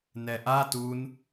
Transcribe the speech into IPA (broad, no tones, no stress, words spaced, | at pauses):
nɛʔa tun